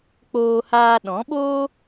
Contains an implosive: yes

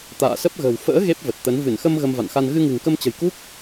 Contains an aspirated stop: no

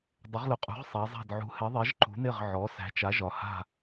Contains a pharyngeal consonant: yes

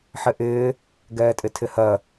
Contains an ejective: yes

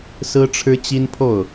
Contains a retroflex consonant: yes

